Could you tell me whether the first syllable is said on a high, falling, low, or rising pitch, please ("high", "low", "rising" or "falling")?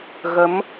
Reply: rising